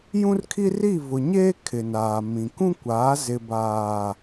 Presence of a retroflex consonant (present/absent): absent